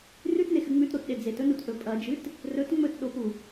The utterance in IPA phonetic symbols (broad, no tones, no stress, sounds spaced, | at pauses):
r ʉ t n e x ɨ ŋ͡m ʉ t ɾ o t ɗ e d͡z e t ɵ n u t ʔ ɵ pʼ ɐ d͡ʒ ɨ t | r ɵ t ŋ͡m ɵ t ɗ o p u